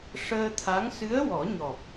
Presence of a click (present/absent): absent